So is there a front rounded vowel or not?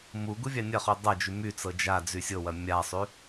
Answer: yes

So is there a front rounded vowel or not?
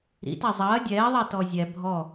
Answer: no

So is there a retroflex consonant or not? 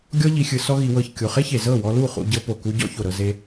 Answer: no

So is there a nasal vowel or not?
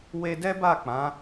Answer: yes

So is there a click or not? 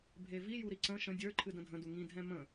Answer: yes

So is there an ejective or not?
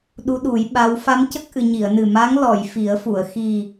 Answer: no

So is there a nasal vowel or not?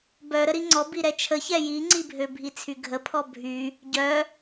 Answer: no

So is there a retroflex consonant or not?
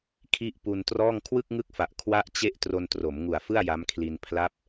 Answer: no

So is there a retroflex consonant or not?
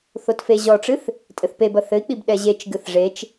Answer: yes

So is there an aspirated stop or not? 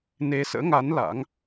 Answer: no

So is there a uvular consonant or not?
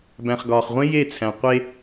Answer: yes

